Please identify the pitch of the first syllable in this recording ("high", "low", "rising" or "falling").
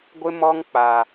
high